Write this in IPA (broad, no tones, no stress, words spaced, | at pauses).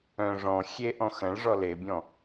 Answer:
œ̃ ʐɔ̃ xʲeʔɔ̃ xɐ̃ɭ ʐɔlebʲɔ̃